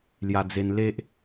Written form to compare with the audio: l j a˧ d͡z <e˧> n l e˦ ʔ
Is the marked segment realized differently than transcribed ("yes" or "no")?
no